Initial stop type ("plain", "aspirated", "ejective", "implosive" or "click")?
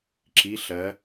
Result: click